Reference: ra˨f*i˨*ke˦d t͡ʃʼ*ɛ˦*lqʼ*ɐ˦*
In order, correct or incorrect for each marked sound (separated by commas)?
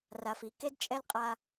correct, correct, incorrect